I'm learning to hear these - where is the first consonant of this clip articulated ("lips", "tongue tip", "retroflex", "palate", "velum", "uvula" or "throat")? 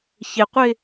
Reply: palate